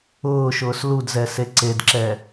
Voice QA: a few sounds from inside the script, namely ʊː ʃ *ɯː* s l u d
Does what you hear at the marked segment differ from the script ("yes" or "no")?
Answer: yes